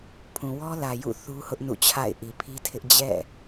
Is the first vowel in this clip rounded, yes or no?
yes